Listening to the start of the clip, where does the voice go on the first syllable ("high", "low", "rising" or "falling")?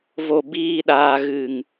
low